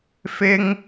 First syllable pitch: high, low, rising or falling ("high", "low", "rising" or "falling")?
high